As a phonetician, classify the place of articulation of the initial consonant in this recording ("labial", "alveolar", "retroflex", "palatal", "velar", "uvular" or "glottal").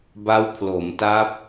labial